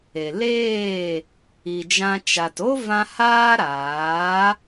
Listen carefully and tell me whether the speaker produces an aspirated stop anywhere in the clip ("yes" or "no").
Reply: no